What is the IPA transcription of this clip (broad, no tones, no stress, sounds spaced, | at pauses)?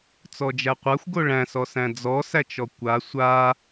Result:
t͡s ɔ d͡ʒ æ qʷ a xʷ ɡ o ɭ æ̃ s ɔ s æ̃ d͡z ɔ s æ t͡ʃ ɔ kʷ a sʷ a